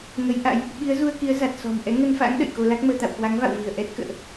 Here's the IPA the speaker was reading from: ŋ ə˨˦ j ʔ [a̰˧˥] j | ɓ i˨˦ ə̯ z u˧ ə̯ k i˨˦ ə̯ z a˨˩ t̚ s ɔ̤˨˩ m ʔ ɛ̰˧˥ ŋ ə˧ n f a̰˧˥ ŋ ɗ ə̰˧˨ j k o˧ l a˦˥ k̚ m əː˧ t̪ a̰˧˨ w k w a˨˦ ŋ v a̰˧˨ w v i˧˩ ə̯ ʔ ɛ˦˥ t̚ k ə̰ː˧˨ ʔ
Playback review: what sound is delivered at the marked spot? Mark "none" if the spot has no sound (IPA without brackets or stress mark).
a̰˧˥